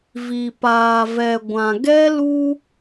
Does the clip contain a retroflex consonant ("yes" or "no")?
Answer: no